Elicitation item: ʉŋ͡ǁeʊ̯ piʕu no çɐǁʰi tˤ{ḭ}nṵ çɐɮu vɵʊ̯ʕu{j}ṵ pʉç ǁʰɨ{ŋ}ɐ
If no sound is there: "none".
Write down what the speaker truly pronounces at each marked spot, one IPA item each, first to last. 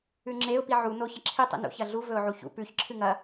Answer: ḭ, ç, ŋ

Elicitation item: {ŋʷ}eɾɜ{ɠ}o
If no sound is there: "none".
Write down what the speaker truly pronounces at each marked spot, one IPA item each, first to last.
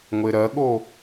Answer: ŋʷ, ɠ

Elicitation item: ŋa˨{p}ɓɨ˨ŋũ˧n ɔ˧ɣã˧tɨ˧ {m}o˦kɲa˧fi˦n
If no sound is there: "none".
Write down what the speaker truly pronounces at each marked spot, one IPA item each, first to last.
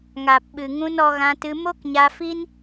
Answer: p, m

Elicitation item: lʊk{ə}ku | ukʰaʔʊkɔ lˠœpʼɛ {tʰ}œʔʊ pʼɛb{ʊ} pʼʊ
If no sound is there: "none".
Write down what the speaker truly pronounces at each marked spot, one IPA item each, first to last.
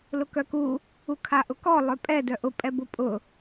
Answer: œ, d, ʊ

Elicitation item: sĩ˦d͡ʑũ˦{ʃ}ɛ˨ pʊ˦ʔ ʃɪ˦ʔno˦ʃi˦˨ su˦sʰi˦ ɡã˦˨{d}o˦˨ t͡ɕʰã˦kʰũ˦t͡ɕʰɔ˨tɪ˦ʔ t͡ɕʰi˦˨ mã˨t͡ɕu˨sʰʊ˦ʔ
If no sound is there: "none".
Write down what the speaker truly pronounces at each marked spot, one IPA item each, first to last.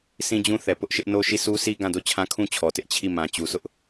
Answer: θ, d

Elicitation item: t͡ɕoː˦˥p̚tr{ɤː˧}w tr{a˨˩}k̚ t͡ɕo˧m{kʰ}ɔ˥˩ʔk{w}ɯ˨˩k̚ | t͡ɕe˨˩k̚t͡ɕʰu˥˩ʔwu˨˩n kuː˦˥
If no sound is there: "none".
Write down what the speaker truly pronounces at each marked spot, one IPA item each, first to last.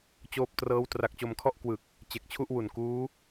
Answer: ɤː˦˥, a˨˩, kʰ, w

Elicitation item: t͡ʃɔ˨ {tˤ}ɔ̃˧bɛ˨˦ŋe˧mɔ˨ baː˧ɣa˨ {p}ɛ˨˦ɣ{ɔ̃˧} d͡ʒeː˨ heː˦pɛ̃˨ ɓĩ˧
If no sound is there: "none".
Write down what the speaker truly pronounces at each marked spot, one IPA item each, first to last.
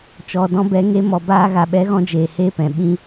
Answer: d, ɓ, ɔ̃˧

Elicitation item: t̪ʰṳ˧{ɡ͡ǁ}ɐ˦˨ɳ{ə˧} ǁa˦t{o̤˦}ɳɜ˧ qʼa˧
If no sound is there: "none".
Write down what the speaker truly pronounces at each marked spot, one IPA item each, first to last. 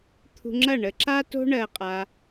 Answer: ŋ͡ǁ, ə˧, o̤˦

